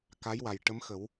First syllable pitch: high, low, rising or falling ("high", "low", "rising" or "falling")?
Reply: rising